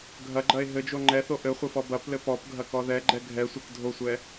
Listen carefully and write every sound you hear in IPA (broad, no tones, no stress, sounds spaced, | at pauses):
ɡʱ ɐ ɡ͡ǃ ɐ e̯ ɦ ɘ d͡ʒ o ŋ͡ǃ ɛ θ o ʔ ɘ χʷ ɘ f ɔ b ɐ p l ɘ p ɔ p ɡʱ ɐ k ɔ ð ɛ ɡ͡ǃ ɛ ɡʱ ɛ sʷ ɘ k dʱ o sʷ ɛ